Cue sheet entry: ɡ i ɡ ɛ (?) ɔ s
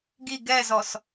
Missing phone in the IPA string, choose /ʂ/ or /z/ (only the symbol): z